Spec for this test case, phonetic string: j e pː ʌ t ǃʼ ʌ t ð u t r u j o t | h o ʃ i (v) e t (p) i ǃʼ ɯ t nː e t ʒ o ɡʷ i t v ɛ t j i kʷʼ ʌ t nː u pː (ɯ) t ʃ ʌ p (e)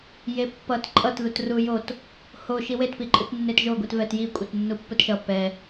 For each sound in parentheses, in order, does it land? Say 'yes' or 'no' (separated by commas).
no, yes, yes, no